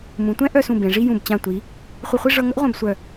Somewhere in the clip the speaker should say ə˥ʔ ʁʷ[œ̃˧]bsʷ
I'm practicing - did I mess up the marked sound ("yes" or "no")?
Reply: no